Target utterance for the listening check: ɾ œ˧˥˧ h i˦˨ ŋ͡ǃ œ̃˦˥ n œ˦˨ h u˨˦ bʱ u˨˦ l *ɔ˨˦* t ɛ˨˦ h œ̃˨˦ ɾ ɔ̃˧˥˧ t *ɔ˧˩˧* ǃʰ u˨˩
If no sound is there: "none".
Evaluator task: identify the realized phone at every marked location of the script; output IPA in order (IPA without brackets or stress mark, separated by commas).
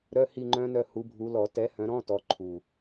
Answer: ɔ˧˩˧, ɔ˨˦